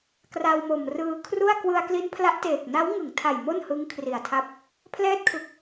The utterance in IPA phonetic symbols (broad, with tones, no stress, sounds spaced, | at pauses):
k r a˧ w m o˨˩ m r ɯː˧ kʰ r u˥˩ a̯ k w ɯ˧ a̯ k l i˦˥ n pʰ l a˦˥ ʔ t eː˨˩ k̚ n a˦˥ w ŋ ɯ˩˦ ŋ tʰ a˨˩ j m o˥˩ n h ɯ˦˥ ŋ kʰ r i˨˩ a̯ tʰ a˦˥ p̚ | pʰ l ɛː˥˩ t̚ kʰ ɯ˦˥ k̚